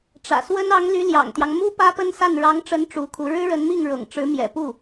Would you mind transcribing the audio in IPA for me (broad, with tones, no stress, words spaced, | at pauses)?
ʈ͡ʂä̰˨˩swə˥n ɑ˧˥ŋ ly˧˥ljɑ̰˨˩ŋt̪jɑ˦ŋ mu˥ pä˥pə˥nsa˥˩n ɻɑ˧˥ŋʈ͡ʂə˧˥n ʈ͡ʂu˧˥kʰu˧˥ ɻɻ̩˥ɻə˧˥nmi˥˩ŋ ɻɤ̰˨˩ŋʈ͡ʂɻ̩˧˥mjɛ̰˨˩ pu˥˩